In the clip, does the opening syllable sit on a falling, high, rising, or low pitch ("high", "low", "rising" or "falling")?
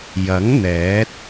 rising